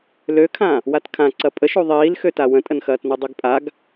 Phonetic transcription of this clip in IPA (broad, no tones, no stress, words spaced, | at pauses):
løkʰã | watkʰã ǀɐpʼəʃu ðˤiːlxøta wə̃tʼənxɐːtnu dˤyɡpʼaɡ